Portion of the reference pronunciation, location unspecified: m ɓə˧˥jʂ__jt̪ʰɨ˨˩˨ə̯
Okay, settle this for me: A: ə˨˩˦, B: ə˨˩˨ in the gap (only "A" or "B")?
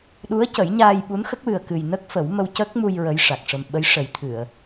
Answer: A